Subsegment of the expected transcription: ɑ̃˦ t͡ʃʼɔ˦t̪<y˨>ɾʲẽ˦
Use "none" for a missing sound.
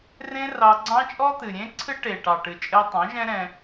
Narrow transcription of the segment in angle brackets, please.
ɨ˨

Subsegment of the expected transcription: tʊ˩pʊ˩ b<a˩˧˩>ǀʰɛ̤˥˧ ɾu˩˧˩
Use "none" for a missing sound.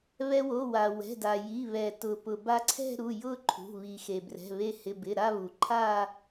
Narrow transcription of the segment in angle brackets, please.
a˧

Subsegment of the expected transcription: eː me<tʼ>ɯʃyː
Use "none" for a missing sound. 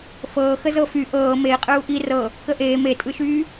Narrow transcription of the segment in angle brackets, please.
tʼ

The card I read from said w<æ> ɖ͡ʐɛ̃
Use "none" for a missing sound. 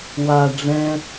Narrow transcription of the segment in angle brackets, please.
a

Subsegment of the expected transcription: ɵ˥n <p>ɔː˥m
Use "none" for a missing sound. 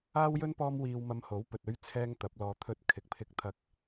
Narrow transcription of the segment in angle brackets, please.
p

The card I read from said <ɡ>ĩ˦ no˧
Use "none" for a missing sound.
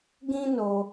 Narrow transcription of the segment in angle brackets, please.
ɡ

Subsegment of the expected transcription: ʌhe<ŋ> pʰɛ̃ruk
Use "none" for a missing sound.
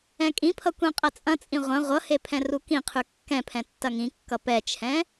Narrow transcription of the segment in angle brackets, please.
none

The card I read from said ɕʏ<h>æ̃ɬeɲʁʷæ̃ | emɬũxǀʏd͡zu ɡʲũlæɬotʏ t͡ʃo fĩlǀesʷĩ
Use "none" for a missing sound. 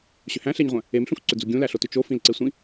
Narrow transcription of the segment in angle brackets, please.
h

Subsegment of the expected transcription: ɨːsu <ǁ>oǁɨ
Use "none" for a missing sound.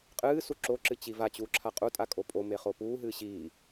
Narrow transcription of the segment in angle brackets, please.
ǁ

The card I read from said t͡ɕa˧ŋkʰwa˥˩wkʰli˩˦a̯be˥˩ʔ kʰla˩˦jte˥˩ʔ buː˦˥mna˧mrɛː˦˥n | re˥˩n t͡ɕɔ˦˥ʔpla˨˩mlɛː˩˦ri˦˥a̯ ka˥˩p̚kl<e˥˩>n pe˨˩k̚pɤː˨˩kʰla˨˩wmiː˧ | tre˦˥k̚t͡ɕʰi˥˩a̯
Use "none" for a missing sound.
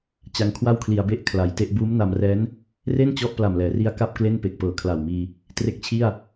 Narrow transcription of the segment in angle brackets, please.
e˥˩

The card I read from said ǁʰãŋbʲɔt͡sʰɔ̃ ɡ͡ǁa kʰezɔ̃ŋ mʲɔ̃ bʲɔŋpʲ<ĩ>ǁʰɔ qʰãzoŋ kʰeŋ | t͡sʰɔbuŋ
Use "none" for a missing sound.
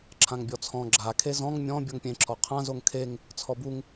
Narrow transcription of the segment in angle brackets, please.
ẽ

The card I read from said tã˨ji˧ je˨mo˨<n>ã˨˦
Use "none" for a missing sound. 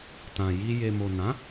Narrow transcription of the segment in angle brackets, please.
n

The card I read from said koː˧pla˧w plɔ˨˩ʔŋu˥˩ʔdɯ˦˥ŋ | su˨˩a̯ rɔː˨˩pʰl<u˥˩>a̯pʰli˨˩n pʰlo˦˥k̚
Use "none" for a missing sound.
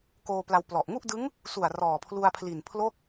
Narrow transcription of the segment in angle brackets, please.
u˧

